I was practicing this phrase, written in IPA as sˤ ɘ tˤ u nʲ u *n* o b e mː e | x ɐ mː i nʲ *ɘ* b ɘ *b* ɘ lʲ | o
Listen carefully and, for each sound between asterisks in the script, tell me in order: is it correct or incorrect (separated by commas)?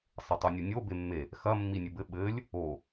incorrect, correct, incorrect